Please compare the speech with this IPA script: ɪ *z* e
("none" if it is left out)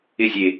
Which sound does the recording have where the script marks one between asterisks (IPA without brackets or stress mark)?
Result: zʲ